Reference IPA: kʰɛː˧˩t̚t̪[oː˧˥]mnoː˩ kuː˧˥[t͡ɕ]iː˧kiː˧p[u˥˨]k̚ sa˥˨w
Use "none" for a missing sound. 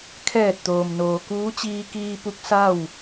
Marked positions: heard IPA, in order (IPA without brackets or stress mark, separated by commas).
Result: oː˩, t͡ɕ, u˧˥